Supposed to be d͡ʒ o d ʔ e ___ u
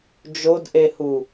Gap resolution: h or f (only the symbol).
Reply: h